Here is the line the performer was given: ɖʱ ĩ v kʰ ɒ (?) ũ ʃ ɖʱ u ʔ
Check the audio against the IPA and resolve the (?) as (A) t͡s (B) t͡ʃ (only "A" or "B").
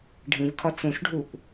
A